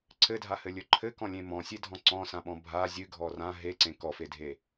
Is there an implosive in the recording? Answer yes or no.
yes